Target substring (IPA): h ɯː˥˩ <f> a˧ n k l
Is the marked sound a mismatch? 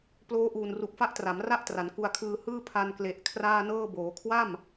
yes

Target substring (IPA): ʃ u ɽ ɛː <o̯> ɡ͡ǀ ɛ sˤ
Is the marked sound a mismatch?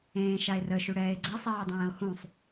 yes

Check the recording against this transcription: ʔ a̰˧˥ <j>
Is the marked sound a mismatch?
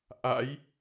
no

